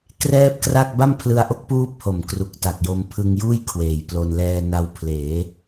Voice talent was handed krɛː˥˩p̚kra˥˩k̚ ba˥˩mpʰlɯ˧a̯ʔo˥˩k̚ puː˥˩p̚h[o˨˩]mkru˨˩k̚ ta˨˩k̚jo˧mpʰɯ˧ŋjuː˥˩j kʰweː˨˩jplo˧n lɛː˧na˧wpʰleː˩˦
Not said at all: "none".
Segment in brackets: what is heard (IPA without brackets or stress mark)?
o˨˩